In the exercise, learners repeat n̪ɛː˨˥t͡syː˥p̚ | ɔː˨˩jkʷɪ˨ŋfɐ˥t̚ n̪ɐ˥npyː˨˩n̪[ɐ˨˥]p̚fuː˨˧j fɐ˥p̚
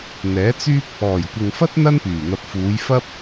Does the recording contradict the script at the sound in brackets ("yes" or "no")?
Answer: yes